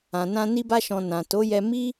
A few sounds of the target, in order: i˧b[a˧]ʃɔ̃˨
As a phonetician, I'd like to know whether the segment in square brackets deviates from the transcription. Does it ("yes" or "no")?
no